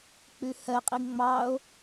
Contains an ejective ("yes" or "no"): yes